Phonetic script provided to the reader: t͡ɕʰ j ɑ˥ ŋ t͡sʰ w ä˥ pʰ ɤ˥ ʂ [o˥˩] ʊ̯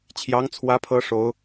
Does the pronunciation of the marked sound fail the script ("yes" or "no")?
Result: yes